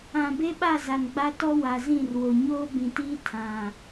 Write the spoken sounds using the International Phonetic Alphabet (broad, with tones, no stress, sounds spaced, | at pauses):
ã˨ b e˦ ɓ a˦˨ z a˨ n ɡ͡b a˦ t ɔ˦ w a˨ z ĩ˦˨ r w o˨ ɲ oː˦ b ĩ˨ t iː˦ tʰ ã˨